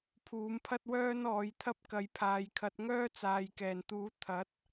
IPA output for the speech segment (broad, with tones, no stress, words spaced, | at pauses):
pʰuː˨˥mpʰɐ˥t̚wœː˥nɔː˨˧j t̪ʰɐ˥p̚kɐ˨˧jpʰaː˨jkʰɐ˨˥t̚ ŋœː˥t͡saː˨jkɛː˨˩nt̪uː˨˥ t̪ʰɐ˨˥t̚